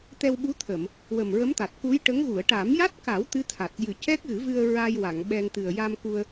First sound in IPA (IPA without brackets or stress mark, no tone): t̪